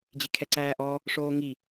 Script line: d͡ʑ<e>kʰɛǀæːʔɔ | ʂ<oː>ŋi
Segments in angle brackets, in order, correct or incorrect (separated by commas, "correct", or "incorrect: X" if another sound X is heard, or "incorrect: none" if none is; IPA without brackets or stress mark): incorrect: i, correct